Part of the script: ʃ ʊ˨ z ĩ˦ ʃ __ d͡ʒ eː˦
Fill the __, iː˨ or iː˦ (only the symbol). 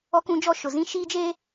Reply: iː˦